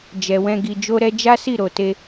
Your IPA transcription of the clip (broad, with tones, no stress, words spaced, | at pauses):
d͡ʒɛ˨wɛ̃˧ ɡi˨d͡ʒo˧ɾɛ˧ d͡ʒa˦si˦˨ ɾo˨te˧